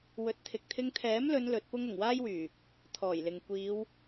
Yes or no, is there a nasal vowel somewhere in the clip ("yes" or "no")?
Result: no